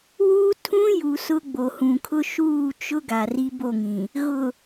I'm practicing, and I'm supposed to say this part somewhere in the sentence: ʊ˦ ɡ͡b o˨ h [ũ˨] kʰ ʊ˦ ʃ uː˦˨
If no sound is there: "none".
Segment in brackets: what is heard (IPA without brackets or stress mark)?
ũ˨